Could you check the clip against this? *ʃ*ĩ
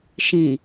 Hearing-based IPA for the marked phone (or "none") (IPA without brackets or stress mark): ʃ